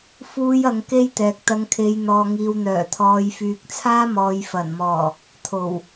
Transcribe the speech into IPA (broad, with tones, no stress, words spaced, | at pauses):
fuː˥jɐ˧ŋke˥jt̪ɛː˨k̚ t̪ɐ˨˧ŋkʰe˨˧jn̪ɔː˨ŋiː˨w n̪œː˨˩t̪ʰɔː˨jfyː˨k̚t͡sʰaː˥ mɔː˨j fɐ˨˩nmɔː˨˩ | t̪ʰo˨˩w